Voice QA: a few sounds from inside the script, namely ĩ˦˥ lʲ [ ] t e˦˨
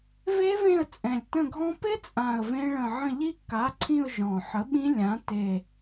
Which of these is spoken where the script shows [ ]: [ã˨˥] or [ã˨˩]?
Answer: ã˨˥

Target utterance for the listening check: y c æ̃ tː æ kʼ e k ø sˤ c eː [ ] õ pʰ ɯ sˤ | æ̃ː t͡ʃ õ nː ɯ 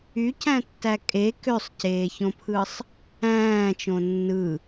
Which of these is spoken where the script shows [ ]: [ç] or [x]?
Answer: ç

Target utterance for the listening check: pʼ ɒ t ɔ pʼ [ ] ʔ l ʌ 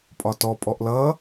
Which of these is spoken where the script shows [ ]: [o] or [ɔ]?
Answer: ɔ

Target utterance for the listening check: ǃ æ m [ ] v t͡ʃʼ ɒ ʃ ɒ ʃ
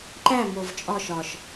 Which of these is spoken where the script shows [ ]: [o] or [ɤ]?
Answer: o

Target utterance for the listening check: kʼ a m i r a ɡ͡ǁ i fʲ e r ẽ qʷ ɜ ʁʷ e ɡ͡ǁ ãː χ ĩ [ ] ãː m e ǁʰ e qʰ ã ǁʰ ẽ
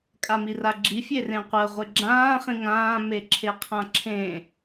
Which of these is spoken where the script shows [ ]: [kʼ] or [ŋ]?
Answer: ŋ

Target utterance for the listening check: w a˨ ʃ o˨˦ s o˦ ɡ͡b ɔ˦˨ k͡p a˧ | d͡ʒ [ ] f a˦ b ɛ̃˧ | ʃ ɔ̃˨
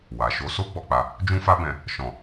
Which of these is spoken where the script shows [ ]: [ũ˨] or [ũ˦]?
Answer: ũ˦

